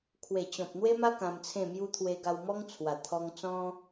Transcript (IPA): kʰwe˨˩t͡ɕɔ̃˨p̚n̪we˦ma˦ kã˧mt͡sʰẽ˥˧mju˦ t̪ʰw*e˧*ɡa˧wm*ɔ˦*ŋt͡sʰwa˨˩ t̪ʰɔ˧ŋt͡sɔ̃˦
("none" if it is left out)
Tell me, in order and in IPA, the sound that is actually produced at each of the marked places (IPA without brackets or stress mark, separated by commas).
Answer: e˧, ɔ˦